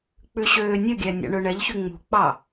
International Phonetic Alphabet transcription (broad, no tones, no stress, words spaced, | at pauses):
k͡pʉɕøːnʲɵɡʲæ nʲɑ̰ɳɵɳɛʎçy ŋ͡mṳk͡pɑ